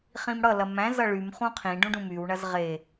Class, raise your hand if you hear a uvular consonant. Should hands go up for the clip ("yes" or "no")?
yes